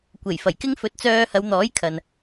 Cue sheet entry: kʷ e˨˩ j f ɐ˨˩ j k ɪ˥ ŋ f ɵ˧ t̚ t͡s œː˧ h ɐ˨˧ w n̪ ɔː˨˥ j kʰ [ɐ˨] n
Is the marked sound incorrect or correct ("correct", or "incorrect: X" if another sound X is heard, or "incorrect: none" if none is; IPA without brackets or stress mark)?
correct